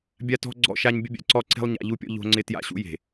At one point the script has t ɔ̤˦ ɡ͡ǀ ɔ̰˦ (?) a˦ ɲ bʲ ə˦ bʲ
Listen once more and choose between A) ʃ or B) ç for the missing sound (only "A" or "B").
A